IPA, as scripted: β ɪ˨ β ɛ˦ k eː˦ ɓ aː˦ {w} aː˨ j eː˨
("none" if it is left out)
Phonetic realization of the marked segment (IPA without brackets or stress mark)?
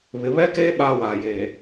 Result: w